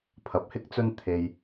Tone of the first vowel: rising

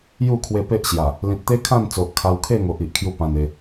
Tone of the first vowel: falling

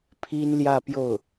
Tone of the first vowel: high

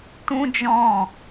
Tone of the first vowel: high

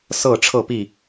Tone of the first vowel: falling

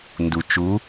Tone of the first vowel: low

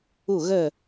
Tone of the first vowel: falling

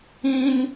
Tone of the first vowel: high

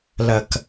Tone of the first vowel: low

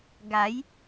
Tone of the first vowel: rising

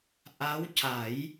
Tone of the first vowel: rising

